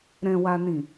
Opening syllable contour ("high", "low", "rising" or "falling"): low